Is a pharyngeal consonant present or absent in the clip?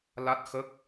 absent